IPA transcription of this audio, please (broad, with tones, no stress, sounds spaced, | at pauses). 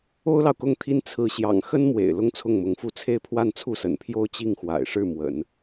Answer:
o˥ ʊ̯ l ɑ˨ ʊ̯ k ʊ˥˩ ŋ t̪ʰ i˥ n t͡sʰ ɹ̩˧˥ ɕ j ɑ̰˨˩ ŋ x ə˥ n m w ḛ˨˩ ɪ̯ l ʊ˥˧ ŋ t͡sʰ ʊ˥˩ ŋ m ʊ˧˥ ŋ f u˥˧ t͡sʰ e˥˧ ɪ̯ pʰ w a˥˧ n t͡sʰ u˥˩ s ə̰˨˩ n pʰ j o˥˧ ʊ̯ t͡ɕ i˥˩ ŋ x w a̰˨˩ ɪ̯ ʂ ɻ̩˥˩ m w ə̰˨˩˦ n